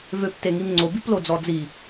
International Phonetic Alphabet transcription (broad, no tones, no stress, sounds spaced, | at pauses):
v ø p t e ŋ i m ŋ͡ǀ o b i p l o d͡z ɔ d͡z i